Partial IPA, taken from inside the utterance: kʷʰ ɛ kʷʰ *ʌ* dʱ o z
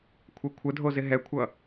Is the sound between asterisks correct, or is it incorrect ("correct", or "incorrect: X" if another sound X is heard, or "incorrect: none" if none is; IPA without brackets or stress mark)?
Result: incorrect: ə